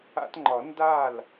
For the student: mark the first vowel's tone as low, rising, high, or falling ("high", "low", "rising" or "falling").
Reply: high